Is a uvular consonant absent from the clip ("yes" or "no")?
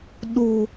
yes